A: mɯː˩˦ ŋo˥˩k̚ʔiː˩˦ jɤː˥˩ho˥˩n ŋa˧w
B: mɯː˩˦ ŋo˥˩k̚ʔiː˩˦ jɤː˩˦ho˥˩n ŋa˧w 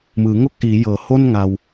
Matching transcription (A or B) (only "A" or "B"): B